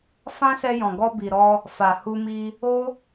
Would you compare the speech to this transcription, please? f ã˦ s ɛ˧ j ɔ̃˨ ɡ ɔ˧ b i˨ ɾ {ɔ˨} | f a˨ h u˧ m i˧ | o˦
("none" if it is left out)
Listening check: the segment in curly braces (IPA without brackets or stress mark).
ɔ˧